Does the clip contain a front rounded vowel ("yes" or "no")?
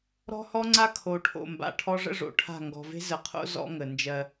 no